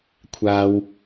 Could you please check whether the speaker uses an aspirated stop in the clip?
yes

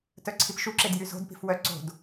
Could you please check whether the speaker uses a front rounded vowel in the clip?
yes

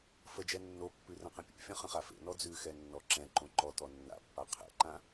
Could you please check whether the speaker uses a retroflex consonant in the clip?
no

